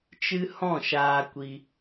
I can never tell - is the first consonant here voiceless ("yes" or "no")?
yes